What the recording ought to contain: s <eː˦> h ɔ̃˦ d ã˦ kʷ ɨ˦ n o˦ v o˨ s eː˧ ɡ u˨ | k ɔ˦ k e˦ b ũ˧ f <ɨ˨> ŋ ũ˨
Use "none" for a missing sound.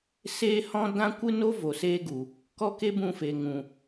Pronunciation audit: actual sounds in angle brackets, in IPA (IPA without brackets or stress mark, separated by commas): eː˦, e˨